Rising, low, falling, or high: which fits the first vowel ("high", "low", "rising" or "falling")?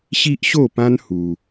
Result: high